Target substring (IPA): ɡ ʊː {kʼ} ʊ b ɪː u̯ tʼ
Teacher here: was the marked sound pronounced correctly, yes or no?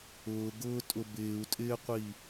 no